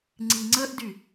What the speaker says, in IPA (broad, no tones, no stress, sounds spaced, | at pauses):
ŋ͡ǀ i ŋ͡ǀ ə ʔ d y